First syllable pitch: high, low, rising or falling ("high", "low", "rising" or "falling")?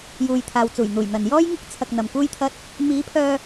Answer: low